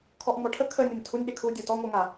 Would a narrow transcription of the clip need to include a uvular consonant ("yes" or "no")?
no